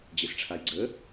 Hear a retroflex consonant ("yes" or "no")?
yes